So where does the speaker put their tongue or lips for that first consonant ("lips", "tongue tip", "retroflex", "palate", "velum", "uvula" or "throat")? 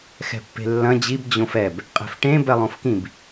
velum